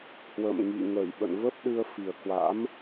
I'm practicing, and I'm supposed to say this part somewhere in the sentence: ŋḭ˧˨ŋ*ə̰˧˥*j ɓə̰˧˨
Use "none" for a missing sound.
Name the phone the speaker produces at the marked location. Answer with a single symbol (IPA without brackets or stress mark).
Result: ə˧˩